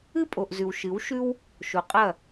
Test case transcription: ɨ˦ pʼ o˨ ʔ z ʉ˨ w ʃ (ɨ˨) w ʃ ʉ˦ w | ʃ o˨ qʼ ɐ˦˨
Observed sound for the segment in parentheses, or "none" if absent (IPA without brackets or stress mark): ɨ˨˦